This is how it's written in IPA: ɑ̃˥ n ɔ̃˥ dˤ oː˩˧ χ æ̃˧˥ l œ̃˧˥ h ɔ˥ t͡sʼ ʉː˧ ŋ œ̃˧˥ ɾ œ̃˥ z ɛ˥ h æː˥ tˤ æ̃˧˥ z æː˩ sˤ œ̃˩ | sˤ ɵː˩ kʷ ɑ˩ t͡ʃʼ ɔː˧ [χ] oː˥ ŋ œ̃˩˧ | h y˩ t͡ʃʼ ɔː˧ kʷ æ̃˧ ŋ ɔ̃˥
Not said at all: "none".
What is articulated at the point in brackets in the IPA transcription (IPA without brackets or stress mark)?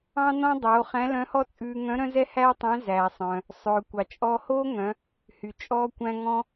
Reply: h